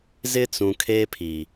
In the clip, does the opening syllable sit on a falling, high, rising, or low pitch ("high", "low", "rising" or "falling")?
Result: high